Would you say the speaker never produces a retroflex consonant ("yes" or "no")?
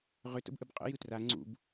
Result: yes